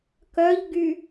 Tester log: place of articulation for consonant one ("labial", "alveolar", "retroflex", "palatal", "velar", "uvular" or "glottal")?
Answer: velar